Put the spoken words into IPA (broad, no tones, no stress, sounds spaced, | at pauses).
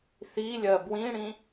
θ i lʲ ɜ b w ĩ ɽ ĩ